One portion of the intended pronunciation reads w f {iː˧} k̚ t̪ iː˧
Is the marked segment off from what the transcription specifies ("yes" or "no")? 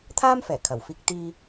no